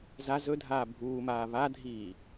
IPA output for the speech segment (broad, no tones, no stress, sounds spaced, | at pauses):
z a z ɵ dʱ aː bʱ uː m aː β a dʱ iː